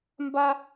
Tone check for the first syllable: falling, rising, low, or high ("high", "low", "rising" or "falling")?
high